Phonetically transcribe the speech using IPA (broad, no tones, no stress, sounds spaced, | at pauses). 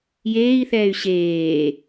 j eː i̯ θ ɛː y̯ ɕ eː